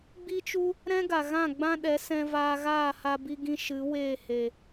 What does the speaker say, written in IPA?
ɡ͡b i˦ t͡ʃ u˦ | ɾ ɛ̃˦ ɡ a˨ ɣ ã˦˨ ɡ͡b ã˦ ɗ ɛ˨˦ s ɛ̃˧ v aː˧ ɣ aː˦˨ h a˧ b i˧ ɡ ĩ˦ ʃ ɨ˨˦ w eː˦˨ h e˨

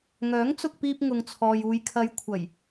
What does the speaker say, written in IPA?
ŋ œː˨˥ ŋ t͡s ʊ˧ k̚ p iː˧ p̚ ŋ ʊ˨ ŋ t͡sʰ ɔː˨ j uː˨ j kʰ ɐ˨˧ j kʷʰ ɐ˨˩ j

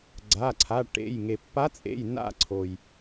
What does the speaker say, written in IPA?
ɡ͡ǀ a˩˧˩ ǀʰ a˩˧˩ ʈ ḛ˩˧˩ j ŋ e˩ pː a˧˥ t͡sʼ ḛ˩˧˩ j n a̰˦˨ ǀʰ o˩ j

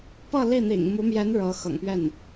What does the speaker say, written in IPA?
p ɤ˥˧ l i˥˩ n̪ ḭ˨˩ ŋ m u˧˥ m j ɛ˧˥ n ɻ ɤ˧˥ x ɤ̰˨˩ ŋ p ɥ ɛ˥˩ n

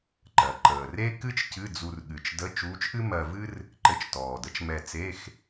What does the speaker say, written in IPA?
ǃ ɜ˨˩ ǃ əː˨˩ r e˥ k ɨ˥ t͡ʃ c ɨ˧˥˧ d͡z u˧ r ɠ ɨ˨˩ t͡ʃ d ə˧˥˧ t͡ʃ uː˧˥ t͡ʃ ʔ ɨ˥ m ɜ˧ v ɨ˥ r | ǃ ɘ˧ t͡ʃ t ɔː˨˩ d ə˧˥ t͡ʃ m ɛ˧ t͡s e˧˥˧ x

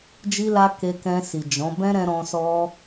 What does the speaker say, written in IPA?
d͡ʒ i˧ l a˧ k e˧ k ɛ̃˧ s i˨ d͡ʒ ɔ̃˨˦ b ɛ̃˦ ɾ ɛ̃˧ ɾ ɔ̃˧ s ɔ˧

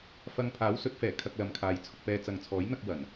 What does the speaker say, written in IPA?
f ɐ˧ ŋ pʰ aː˨˥ w s ɵ˨˥ t̚ f ɛː˨˩ kʰ ɐ˧ k̚ l ɐ˨˧ m kʰ aː˨˧ j t͡sʰ ʊ˨ k̚ p ɛː˨˧ t͡s ɐ˨ ŋ t͡sʰ ɔː˨˥ j n̪ ɐ˧ k̚ w ɐ˨˩ n

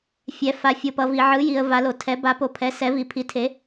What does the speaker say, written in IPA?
fʲ ɛ˨ f a˨ fʲ o˨ p ʌ˨ v i˨ ʕ ɯ˨˦ j i˨ ə̯ v a˨˦ l o˨ tʰ ɛ˨˦ b a˨˦ p o˨˦ pʰ ɛ˨˦ s ɛ˨˦ v i˨ pʰ i˨˦ tʰ e˨˦

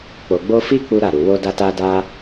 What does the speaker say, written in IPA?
k͡p o˨ ɡ͡b o˧ f i˦ k͡p u˦ ɾ a˦˨ ɾ u˨ w o˧ d a˧ t a˦ d a˦

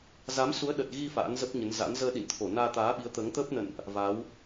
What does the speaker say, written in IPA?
z a˨˦ m s u˨˦ ə̯ ɗ ə˨˩ t̚ ɣ i˧ f a̰ː˧˥ n z ə˦˥ p̚ ɲ ə˨˦ n z a̰˧˥ n z əː˧ ɗ ḭ˧˨ n t̪ʰ o˧˩ n aː˧ t̪ aː˨˦ ɓ i˨˦ ə̯ t̪ əː˨˦ ŋ t̪ əː˦˥ p̚ n ə̰˧˨ n ʔ | v a˨˦ w

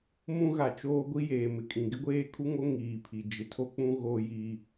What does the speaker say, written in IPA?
m ũ˦ ɣ a˨ t͡ʃ oː˦ ɡʷ i˦ j eː˨ m ɪ˨ kʼ ĩ˨ ɡ ɪ˦ ɡʷ eː˦ kʰ u˦ ŋ o˦ ŋ iː˨ pʰ i˨ d͡ʒ ɪ˨ tʰ o˦ k͡p ũ˦ ɣ o˦ j iː˦

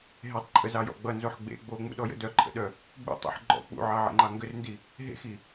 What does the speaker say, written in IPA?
ɦ e tˤ ǃʼ ə z ɑ j ɔ̰ ɡ͡b ʌ n z o ħ ɡ͡b ḛ ɡ͡b o ŋ͡m ṵ ɗ ɔ j ə̰ d œ ǃʰ ə̰ ɗ œ | ɡ͡b ṵ tˤ ṵ ħ ɡ͡ǃ ɔ̰ k͡p ṵ ʕ ɑ ʕ ḛ ŋ͡ǃ ɑ ŋ ɡ ʏ r n d i | ɦ ḛ x i

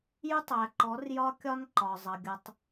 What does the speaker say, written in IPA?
j u˦ tˤ æ˨ ǃ ɔ˨˦ r j ɒ˦ kʲ ɒ˦ n ǃ ɒ˨ zˤ ʌ˨ ɡʲ ʌ˦ tˤ

